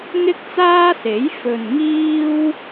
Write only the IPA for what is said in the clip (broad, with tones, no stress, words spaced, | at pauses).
ŋɪ˥k̚t͡saː˥se˨˥j fɵ˨nŋiː˥w